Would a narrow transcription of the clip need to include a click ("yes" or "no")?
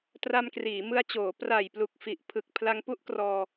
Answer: no